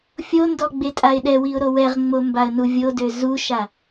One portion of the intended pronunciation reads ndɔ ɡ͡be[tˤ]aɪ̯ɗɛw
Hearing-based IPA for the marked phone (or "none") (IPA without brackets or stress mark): tʼ